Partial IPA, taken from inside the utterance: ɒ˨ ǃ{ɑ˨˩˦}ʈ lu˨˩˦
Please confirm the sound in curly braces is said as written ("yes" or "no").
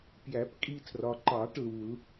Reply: yes